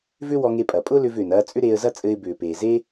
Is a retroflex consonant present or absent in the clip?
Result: absent